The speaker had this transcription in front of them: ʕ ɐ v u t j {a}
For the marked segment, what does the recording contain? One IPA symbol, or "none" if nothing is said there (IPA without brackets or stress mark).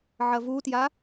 a